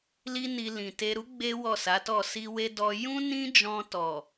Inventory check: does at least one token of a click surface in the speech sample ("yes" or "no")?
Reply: no